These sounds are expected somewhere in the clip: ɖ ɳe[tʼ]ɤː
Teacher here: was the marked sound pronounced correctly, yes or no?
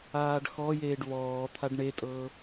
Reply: yes